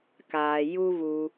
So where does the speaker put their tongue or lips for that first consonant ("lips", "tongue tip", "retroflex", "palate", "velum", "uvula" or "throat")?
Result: velum